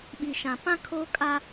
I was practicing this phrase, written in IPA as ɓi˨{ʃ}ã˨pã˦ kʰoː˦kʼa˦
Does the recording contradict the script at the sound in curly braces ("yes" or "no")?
no